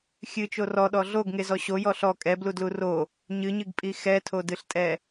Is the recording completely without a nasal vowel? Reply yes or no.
yes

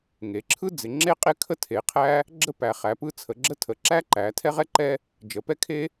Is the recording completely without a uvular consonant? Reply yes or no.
no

